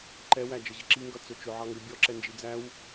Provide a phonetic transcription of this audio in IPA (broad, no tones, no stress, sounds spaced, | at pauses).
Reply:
ǃ ɛ w æ d͡ʒ ə ʑ ɪ ǁ i ŋ ɡ ʌ t͡s ʊ t͡ʃ ʊ ʕ ɑ ŋ ɡ ə bʲ ɔ ǁ ɛ n d͡ʒ i d͡z æ w